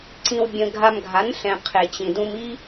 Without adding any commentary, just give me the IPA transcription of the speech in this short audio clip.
ǀ ĩ˧ w bʲ ə̃˧ ɡʱ a˧ m ɡʱ a˨˦ n ɬ ɛ̃˨ qʰ e˨ t͡ɕ ĩ˨ d ũ˧ m i˦

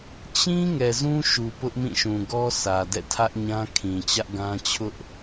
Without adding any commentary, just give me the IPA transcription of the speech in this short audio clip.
t͡ɕ ĩ˦ ŋ ɛ˨ z ũ˦ ʃ u˨ p ʊ˦ ʔ m ĩ˦˨ ʃ ũ˨ ɡ ɔ˦ sʰ ä˨ d ɛ̰˦˨ tʰ ä˦ ʔ ɲ ã˦ kʰ ĩ˨ t͡ɕ ä˦ ʔ ɡ ã˦ t͡ɕʰ ʊ˦ ʔ

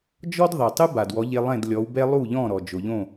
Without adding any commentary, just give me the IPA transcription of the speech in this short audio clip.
d͡ʒ ɔ˥ d ðˤ e˩ tˤ ɨ˥ b a˩ d w ɔ˩˥ ʎ e˧ lˠ ɛ̃˥˩ d lʲ ɔ˩˥ w b ɛ˥ lˠ u˥˩ ʎ ɔ̃˥˩ ɾ ɔ˩ d͡ʒ o˩ ʎ õ˥˩

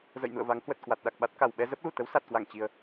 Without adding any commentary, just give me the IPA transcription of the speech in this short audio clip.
z ə̰˧˨ j n ṵ˧˨ ə̯ v a˨˦ ŋ h w ə˨˩ t̚ k w a˨˩ t̚ ɗ a˨˩ k̚ ɓ a˦˥ t̚ k a˨˩ w ɓ ɛ˧ z ə˦˥ p̚ l u˧˩ t̪ ə˨˦ w s a˨˩ t̚ k w a˧˩ ŋ t͡ɕ i˨˩ ə̯

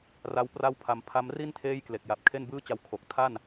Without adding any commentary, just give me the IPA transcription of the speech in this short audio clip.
r a˦˥ w p r a˥˩ w pʰ a˧ m pʰ a˦˥ m r i˥˩ n tʰ eː˥˩ j k l e˨˩ k̚ j a˨˩ p̚ kʰ e˥˩ n b ɯː˥˩ t͡ɕ a˦˥ w kʰ o˨˩ k̚ tʰ a˥˩ n

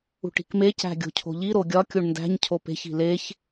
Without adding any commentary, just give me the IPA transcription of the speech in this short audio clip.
ṳ ʈ i̤ k m e c æ̤ ɡʲ o̤ cʰ o̤ ʎ i ɾ o ɡʲ ɒ kʲ u ɳ n d æ̤ ɲ cʰ o p e̤ ç i̤ l e ç

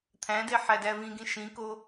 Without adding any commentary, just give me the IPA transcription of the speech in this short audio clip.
t̪ʰ æ̃ d e ħ æ d æ v ĩ ɡ ĩ ʃ ĩ k o

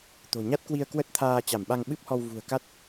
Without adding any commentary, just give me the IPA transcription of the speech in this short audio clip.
t̪ o̤˨˩ ɲ a˦˥ t̚ k w i˧ ə̯ k w ə˦˥ t̚ t̪ʰ aː˧ t͡ɕ a˧˩ m ɓ a˧ ŋ ɓ ɨ˦˥ p̚ h ɔ˧ w v ṳ˨˩ ə̯ k a˦˥ t̚

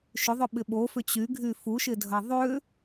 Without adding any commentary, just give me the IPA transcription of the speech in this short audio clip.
ʃ ʏ ðˤ ʏ ɓ ɪ ɓ o f ʏ t͡ɕ y ɡʱ y f u ʃ ɪ dʱ ɐ ðˤ ʏ

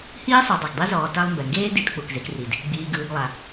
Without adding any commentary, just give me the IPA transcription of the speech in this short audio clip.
h iː˥ sˤ ɯ˨ dˤ ɛ˩ ɡ dˤ i˦ z ɔː˨ t a˦ lˠ m b ɛ˩ ŋ ɡ eː˥ d i˨ t k͡p u˩ k z e˨ k r i˩ d | ɡ͡b iː˨ ɡ ɯː˨ ɡ lˠ a˩

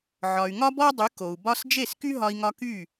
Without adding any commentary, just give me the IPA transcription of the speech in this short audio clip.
ʕ ɒ˩ y̯ ŋ ɒ˥ b ɔ˥ dˤ y˩˥ k o˩ u̯ b ɒ˥ s d͡ʒ e˥˩ s k y˥ ɦ ɒ˧ i̯ ŋ ɒ˧ k y˥˩

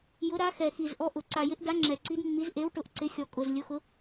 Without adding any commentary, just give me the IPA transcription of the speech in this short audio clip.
j ʊ˨˥ ɾ a˨˥ x ɛ˨˩ x i˨˩ z ʔ ɔ˨˥ ʔ ʊ˨˩ ǀ a˨˩ j ɪ˨˥ ʔ d a˨˥ ŋ͡ǁ ɛ˨˩ ǀ i˨˥ d mː i˨˥ z ʔ e˨˥ w ʈ ʊ˨˥ ʔ ǀ ɪ˨˥ xʲ ɔ˨˩ kʼ ʊ˨˩ z lʲ ʊ˨˥ x ʊ˨˥

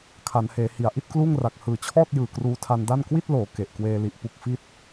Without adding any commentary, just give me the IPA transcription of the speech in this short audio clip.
kʰ a˩˦ n h eː˩˦ h i˩˦ a̯ ʔ i˥˩ t̚ k l uː˥˩ ŋ r a˨˩ k̚ h ɯː˨˩ t͡ɕʰ ɔː˥˩ t̚ j ɯː˨˩ k r uː˧ tʰ a˧ n d a˥˩ n k w i˥˩ t̚ l oː˩˦ k e˨˩ ʔ k w eː˧ l i˨˩ ʔ p u˥˩ k̚ f i˥˩ t̚

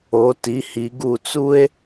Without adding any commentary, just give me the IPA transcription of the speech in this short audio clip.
o˨˥ t i˨˥ h i˨˥ ɡ u˦˨ t͡s u˥ e̯

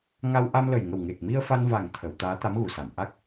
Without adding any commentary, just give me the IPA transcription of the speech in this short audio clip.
ŋ a˧ w ʔ a˧ m l ə˨˩ j ŋ ə˨˩ w ŋ e˨˩ k̚ m i˧ ə̯ f a˧ n v a˨˩ ŋ t̪ʰ ə˨˩˨ w t̪ aː˧˥ t̪ a˧˥ m ɣ u˨˩˨ s a˨˩˨ m ʔ a˦˥ k̚

